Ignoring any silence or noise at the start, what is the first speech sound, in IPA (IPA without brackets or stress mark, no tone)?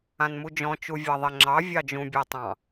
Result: ã